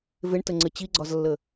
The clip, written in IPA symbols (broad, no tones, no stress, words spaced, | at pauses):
veɳtəŋ͡ǀɘ t͡ɕiɡ͡ǀɒzlːə